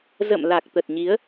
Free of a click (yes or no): yes